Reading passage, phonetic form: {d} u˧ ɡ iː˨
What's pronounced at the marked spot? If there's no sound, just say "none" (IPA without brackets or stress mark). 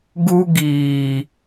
ɡ